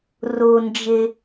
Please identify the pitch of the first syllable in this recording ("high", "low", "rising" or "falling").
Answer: low